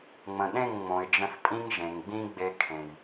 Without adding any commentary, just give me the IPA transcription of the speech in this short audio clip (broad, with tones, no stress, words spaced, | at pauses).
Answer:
ŋ͡mə̃˨ɗẽ˦˨ŋ ŋ͡mõ˨ɪ̯d͡ʒə̃˧θpʼĩ˦ŋ ʒẽ˨ŋɡ͡bĩ˦ ɡ͡be˧kʰẽ˨j